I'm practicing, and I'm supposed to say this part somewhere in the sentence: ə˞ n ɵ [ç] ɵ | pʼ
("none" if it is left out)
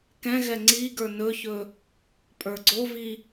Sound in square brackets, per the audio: ç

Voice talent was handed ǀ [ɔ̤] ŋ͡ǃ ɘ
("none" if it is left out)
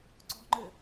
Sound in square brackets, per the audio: ɔ̤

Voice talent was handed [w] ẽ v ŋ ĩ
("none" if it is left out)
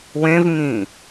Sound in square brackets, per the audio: w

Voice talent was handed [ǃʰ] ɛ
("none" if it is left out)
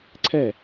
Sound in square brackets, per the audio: ǀʰ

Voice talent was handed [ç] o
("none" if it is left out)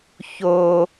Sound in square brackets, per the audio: ç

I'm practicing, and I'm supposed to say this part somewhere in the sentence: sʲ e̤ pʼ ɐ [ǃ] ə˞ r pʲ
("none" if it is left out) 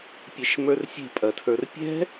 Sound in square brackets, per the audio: tʰ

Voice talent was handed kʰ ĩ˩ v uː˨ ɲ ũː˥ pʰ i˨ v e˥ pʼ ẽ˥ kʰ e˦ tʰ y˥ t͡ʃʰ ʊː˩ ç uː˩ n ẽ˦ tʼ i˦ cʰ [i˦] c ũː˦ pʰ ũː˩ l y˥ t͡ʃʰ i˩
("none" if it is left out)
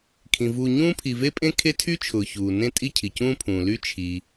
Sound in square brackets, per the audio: i˩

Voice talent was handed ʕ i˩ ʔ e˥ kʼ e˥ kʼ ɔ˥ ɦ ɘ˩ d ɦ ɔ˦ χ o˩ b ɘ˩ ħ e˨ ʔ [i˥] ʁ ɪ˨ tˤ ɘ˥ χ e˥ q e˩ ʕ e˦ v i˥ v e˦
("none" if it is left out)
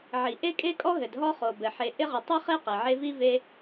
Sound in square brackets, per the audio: ɪ˥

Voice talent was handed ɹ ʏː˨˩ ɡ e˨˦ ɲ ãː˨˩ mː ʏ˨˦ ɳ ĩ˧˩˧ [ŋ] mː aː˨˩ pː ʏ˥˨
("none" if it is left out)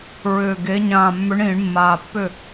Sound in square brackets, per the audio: ɳ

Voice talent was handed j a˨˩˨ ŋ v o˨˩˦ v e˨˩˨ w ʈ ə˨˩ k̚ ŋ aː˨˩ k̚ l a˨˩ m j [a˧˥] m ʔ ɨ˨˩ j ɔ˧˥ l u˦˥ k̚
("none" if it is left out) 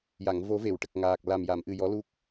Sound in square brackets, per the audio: a˨˩˨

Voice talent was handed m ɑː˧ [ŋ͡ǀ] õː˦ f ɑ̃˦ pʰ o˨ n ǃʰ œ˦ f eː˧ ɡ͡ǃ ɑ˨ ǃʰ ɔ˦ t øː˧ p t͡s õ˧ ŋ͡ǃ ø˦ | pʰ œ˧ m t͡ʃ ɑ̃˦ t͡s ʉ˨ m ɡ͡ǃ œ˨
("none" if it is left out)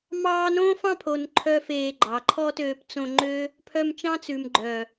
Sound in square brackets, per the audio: n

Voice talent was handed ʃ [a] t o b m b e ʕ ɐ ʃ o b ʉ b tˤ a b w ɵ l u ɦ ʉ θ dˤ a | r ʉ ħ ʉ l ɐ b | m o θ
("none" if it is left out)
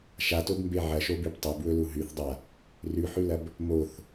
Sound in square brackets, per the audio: a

